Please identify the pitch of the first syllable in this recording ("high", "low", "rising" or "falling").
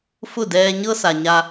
falling